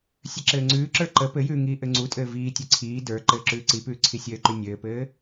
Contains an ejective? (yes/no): yes